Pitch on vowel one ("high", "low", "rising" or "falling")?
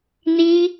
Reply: high